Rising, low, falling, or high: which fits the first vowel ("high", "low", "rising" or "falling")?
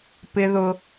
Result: high